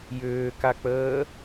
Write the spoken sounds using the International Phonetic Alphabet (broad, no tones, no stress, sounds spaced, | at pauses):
j ʏː k a k͡p əː